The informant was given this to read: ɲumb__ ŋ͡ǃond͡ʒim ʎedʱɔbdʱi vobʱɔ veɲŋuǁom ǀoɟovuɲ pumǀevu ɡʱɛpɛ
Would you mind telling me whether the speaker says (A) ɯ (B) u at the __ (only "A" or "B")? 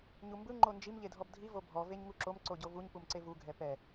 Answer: A